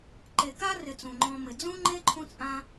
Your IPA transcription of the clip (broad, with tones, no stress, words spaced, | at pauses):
ǃe˨ka˥rɪ˨ t͡sũ˩ŋ͡ǃɔ̃˨mɪ˩ d͡zũ˥ŋ͡ǃe˥ ǃʰũ˦t͡sʼã˦